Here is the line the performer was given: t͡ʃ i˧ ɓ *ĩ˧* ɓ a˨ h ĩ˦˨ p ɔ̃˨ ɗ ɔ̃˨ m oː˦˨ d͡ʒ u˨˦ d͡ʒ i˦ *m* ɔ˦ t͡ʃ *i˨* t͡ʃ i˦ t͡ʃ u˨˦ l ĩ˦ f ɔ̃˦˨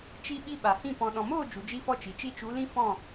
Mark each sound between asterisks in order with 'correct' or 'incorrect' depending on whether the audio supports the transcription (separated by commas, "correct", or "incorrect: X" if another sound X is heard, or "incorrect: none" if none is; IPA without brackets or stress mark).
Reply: incorrect: i˧, incorrect: f, correct